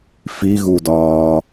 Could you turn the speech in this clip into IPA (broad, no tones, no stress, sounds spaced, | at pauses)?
f i ɣ u d ɒː